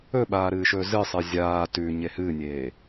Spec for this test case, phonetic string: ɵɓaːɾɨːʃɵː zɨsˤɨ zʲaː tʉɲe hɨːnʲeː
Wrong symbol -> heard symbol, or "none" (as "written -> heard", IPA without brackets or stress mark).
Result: none